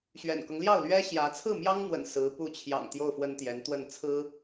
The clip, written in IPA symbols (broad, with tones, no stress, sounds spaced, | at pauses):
ɕ ɥ ɛ̰˨˩ n k ɤ˦ ŋ l j ɑ˥˩ ʊ̯ l ɥ ɛ˥ ɕ j ä˧˥ t͡sʰ ɹ̩˥˩ m j ɑ˥ ŋ n̪ w ə̰˨˩ n s ɹ̩˧˥ p u˧˥ t͡ɕʰ j ɑ̰˨˩ ŋ t̪ j o˥˩ ʊ̯ f w ə˥ n t̪ j ɛ˧˥ n t̪ w ə˥˩ n t͡sʰ ɹ̩˥